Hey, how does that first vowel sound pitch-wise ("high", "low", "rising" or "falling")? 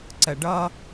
low